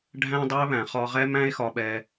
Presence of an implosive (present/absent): present